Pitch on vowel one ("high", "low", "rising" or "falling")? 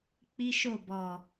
high